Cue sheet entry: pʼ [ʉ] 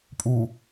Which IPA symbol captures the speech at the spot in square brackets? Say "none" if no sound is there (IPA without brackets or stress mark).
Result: u